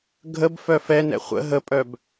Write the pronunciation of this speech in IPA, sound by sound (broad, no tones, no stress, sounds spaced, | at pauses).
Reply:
ɡʱ ə b f œ f ɛ n ɛ̰ χʷ ə̰ ɦ ə pʼ œ b